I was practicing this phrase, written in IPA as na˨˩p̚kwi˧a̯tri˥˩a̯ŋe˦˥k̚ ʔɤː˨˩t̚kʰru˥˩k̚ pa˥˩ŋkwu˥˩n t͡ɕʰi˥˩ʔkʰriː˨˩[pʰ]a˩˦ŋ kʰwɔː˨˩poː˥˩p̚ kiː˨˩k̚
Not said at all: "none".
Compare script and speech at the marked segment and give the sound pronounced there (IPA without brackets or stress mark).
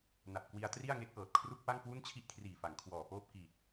f